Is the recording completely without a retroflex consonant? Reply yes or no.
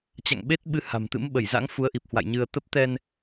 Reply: yes